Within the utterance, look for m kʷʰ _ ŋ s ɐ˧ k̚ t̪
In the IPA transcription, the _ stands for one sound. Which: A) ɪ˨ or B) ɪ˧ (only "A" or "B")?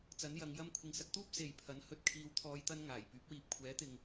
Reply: A